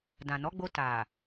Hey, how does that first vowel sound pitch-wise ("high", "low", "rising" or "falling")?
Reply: low